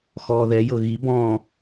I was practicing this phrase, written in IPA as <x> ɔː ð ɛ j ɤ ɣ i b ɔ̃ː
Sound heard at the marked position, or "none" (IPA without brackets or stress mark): x